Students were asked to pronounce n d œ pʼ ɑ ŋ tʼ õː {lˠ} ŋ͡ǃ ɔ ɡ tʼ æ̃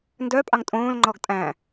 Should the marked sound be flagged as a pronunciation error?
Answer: yes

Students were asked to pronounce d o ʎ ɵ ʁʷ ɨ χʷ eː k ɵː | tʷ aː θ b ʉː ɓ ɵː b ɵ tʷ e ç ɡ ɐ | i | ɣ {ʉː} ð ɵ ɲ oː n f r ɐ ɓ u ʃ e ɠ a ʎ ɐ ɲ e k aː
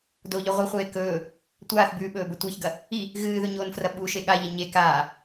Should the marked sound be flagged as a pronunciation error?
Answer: yes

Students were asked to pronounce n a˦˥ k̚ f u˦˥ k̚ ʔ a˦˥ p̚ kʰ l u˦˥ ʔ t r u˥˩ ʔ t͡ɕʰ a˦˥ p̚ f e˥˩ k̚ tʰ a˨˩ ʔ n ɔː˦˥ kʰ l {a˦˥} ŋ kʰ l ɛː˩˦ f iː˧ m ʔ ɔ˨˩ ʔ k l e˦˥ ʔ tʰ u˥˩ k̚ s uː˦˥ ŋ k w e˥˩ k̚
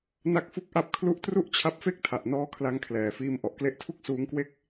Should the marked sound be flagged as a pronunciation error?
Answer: yes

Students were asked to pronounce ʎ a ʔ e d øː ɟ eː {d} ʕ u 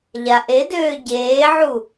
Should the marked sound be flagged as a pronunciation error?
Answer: yes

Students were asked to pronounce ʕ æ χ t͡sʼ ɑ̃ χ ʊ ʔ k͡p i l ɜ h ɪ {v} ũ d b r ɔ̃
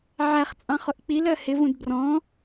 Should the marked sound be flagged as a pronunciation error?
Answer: no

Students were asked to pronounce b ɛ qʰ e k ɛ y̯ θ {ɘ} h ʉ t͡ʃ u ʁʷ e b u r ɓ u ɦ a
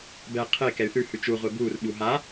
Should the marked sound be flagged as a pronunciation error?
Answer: yes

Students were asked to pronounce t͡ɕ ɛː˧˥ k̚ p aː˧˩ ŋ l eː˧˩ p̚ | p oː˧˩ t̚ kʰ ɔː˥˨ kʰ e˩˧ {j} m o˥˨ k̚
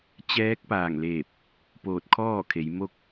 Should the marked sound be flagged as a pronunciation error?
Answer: no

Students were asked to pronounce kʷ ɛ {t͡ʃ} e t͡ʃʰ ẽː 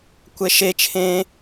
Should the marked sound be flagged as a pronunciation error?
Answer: yes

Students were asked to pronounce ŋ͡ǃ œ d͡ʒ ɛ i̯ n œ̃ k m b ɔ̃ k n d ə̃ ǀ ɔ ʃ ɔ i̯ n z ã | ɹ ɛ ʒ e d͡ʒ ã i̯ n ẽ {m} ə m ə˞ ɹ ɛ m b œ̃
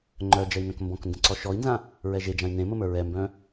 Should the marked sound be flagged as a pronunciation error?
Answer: no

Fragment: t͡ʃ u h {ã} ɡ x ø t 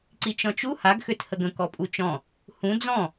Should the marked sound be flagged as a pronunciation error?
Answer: yes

